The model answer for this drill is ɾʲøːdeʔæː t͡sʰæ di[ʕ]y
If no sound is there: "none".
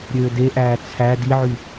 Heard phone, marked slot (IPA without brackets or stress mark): ʕ